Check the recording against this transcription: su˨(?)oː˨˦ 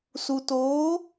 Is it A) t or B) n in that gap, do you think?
A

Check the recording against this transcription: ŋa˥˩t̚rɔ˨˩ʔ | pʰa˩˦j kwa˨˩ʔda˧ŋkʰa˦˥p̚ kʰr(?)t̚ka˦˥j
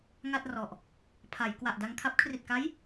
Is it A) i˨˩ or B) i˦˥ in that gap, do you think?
A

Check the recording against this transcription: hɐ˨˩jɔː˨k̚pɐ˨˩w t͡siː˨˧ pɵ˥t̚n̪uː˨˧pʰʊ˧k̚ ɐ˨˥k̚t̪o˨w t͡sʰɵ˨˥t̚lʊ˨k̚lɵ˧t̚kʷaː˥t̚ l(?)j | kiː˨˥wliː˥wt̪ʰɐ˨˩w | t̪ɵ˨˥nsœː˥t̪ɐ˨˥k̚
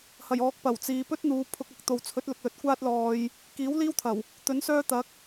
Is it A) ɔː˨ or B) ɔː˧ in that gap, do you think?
B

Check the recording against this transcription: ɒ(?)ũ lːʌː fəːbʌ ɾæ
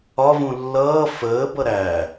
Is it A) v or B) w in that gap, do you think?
A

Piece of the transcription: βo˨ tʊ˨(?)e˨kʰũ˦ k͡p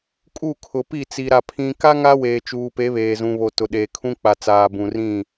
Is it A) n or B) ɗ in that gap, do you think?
B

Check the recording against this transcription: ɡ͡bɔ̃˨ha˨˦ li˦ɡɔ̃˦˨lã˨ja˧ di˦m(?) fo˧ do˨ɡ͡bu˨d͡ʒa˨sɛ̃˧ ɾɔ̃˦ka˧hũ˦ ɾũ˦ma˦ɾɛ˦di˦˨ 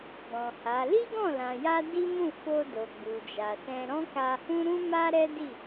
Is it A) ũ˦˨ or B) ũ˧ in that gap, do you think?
A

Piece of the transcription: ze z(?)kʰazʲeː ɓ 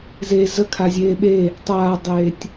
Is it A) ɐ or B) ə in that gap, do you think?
B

